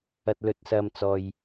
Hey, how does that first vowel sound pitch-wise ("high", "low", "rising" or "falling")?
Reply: low